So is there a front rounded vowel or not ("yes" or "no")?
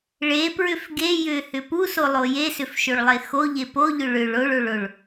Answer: yes